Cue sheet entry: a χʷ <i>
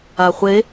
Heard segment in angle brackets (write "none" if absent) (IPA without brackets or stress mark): e